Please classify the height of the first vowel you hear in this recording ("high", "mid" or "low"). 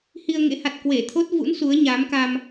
high